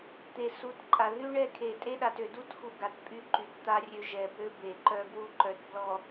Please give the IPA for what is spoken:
t̪ e˨ s u˨˦ t ǃʼ a˨ ð y˦ ɳ ɛ˦ kʰ e˨ tʼ e˦ ɗ a˨ t ø˨ d u˦ t x u˨ ɡ a˨ t pʼ y˦ ǃ y˨ t t̪ a˦ rʲ ø˦ ʒ ɛ˨ b ø˦ b e˨ ǃ œ˦ ɡ w u˦ ǃ œ˨ t b l ɔ˨

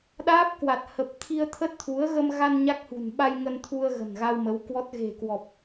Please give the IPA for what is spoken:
ɗ aː˦˥ p̚ k w a˨˩ t̚ h ə˨˩ p̚ t̪ʰ i˧ ə̯ t̪ʰ ə˦˥ t̚ t̪ʰ u˨˦ ə̯ ɣ ə˧ m ɣ a˧ n ɲ a˦˥ k̚ h ṳ˨˩ n ɓ a˧ j ŋ ə˧ n t̪ʰ u˧ ə̯ ɣ ə̤˨˩ n ɣ a˧ w m ə˨˦ w k w ɔ˦˥ t̚ ɣ e̤˨˩ k w ɔ˨˩ p̚

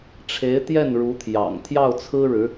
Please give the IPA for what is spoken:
ʈ͡ʂʰ e˧˥ ɪ̯ t̪ j ɛ˥˩ n ɻ u˧˥ t̪ʰ j ɑ̰˨˩ ŋ t̪ʰ j ɑ˥˩ ʊ̯ t͡sʰ ɹ̩˥ ɻ ɻ̩˧˥

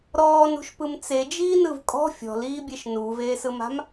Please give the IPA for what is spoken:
ɾ ɔː n ṳ ʃ p ɯ m t͡s e d͡ʒ iː n ɯ v kʼ ɔ̤ fʲ ɔ̤ l iː bʲ e ʃ n uː v eː s ɯ m a̤ m

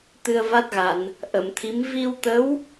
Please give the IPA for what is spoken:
t̪ ɨ˧ ə̯ v a˦˥ t̚ ɣ a˨˩˨ n | ʔ ə˨˩˨ m t̪ʰ i˧˥ m v i˧ w t̪ ə˧˥ w

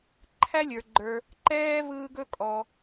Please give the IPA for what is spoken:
ǃʰ æ˥ lʲ ə˞˩ ɡ͡ǃ ə˞˨ | ǃ ɛː˦ v ɯː˦ ɡ ɵ˥ kʼ ɔ˨

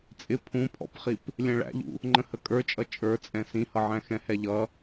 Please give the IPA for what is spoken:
t͡sʼ ɪ pʰ ũ pʰ ɔ̰ p χ i p | lʲ ɛ̃ ɭ æ̰ ʎ ṵ | ŋ͡ǃ ə̃ h ə kʼ ə˞ t͡ʃʼ ʌ t͡ʃʼ ə˞ t͡sʼ ɛ̃ s ĩ h ʌ ʕ æ̃ x ɛ̃ h ɛ ʎ ʌ

